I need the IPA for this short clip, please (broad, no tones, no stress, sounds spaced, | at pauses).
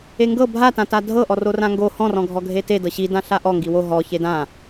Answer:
e ŋ ɡ ɤ bʱ a t ã t a dʱ ɤ ʔ ɔ r o r ã ŋ ɡ o h ɔ̃ r ɔ̃ ɡʱ ɔ ɡʱ e t e d ɤ ɕ i d ã ɬ a ʔ ɔ ŋ ɡ i w o ɦ ɔ ç e d ã